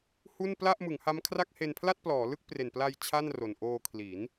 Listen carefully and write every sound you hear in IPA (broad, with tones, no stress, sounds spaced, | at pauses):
h u˥˩ n p l a˥˩ ʔ m ɯ˩˦ ŋ h a˦˥ m kʰ r a˥˩ k̚ h e˧ n pʰ l a˥˩ t̚ p l ɔː˩˦ l ɯ˥˩ k̚ p r e˨˩ n p l a˧ j t͡ɕʰ a˥˩ n r o˨˩ n ʔ oː˧ kʰ l i˩˦ n